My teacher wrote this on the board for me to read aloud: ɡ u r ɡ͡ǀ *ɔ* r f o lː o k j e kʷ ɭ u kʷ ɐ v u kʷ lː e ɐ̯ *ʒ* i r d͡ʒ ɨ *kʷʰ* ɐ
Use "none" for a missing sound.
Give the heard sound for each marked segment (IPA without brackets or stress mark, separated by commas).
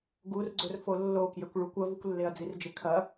ɵ, d͡z, kʰ